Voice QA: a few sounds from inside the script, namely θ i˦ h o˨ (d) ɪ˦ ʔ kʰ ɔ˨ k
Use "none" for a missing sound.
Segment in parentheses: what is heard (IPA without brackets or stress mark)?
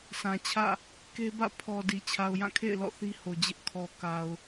d͡ʑ